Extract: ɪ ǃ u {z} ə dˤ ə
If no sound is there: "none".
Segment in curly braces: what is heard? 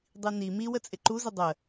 z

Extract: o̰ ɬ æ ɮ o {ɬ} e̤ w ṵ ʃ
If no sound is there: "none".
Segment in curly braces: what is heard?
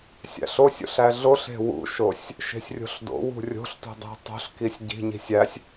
ɬ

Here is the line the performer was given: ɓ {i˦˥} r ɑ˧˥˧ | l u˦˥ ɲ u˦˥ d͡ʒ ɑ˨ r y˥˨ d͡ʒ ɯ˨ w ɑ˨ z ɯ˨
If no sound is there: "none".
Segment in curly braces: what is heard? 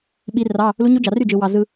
i˦˥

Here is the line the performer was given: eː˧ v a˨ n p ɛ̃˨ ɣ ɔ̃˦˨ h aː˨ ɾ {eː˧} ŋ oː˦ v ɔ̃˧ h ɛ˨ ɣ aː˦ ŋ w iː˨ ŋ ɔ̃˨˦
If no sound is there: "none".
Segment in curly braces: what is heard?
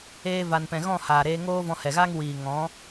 eː˧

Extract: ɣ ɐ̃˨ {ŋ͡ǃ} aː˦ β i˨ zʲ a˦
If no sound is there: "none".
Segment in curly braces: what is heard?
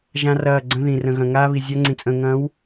ŋ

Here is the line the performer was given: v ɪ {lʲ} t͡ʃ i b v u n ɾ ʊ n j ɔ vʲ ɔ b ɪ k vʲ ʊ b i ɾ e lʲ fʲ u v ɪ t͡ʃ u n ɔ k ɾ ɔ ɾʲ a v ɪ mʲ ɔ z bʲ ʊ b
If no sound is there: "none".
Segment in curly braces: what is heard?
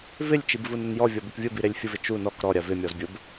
lʲ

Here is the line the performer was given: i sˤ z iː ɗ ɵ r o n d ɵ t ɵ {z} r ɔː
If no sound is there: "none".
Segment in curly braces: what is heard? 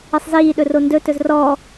z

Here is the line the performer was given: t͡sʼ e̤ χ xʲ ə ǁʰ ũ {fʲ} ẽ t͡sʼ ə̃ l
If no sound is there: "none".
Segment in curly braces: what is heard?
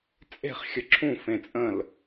f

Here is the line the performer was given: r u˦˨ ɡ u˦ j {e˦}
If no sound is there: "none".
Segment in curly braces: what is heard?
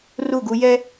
ɛ˦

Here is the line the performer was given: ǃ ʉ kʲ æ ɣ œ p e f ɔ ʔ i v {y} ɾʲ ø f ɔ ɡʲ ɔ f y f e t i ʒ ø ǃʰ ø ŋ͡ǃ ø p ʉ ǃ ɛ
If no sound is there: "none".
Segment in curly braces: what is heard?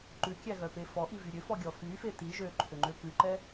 y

